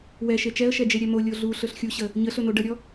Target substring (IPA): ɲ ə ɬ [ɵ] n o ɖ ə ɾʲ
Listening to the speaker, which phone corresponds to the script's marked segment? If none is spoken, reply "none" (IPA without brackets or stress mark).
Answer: ɵ